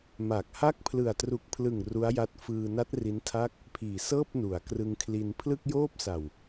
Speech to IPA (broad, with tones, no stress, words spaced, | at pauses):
ma˨˩k̚ha˥˩k̚ pʰlɯ˨˩a̯tru˨˩k̚pʰlɯ˨˩ŋ ru˦˥a̯ja˦˥t̚ fɯː˧na˦˥t̚ ri˦˥ntʰa˥˩k̚ | pʰiː˨˩ sɤː˥˩p̚nu˩˦a̯krɯ˧ŋkʰli˧n pʰlɯ˥˩k̚joː˥˩p̚ sa˨˩w